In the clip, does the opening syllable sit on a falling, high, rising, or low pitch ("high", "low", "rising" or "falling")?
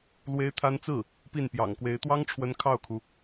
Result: high